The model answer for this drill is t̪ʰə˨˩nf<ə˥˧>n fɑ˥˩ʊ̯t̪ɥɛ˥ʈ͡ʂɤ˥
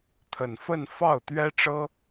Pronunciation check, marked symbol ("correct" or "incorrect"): correct